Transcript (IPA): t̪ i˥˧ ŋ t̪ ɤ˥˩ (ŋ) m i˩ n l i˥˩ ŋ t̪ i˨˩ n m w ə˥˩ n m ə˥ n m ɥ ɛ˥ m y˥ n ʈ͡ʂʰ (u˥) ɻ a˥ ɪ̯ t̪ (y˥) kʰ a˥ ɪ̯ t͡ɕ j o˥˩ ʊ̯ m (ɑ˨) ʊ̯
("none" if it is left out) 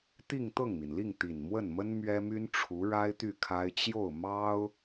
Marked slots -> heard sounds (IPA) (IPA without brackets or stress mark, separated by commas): ŋ, u˧˥, y˥˩, ɑ˥